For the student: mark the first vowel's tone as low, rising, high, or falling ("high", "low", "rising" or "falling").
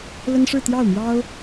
high